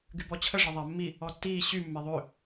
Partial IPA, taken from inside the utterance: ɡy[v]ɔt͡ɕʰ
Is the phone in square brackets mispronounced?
yes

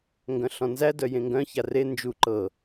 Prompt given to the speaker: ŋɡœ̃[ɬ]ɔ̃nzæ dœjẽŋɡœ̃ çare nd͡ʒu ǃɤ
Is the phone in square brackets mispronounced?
no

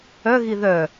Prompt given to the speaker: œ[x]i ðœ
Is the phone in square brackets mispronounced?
yes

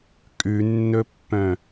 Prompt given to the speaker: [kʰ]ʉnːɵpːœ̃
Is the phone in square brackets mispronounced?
yes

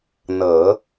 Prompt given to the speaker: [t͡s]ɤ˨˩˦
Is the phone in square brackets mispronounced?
yes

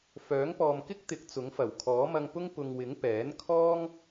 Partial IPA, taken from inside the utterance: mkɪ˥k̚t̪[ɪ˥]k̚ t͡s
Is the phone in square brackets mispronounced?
yes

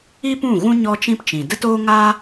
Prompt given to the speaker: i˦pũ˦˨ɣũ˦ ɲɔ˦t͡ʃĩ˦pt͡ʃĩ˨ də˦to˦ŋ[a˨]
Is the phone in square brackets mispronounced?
yes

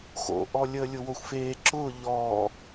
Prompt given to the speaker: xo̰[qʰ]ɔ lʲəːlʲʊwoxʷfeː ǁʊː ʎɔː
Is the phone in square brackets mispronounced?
yes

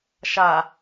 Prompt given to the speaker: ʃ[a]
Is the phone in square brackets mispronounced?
no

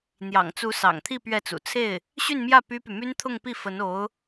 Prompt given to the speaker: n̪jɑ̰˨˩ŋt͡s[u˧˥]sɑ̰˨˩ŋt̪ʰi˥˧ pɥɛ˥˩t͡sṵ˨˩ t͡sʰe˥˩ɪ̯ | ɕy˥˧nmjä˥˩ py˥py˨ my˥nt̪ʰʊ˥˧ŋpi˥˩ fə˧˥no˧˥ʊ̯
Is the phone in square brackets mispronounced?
no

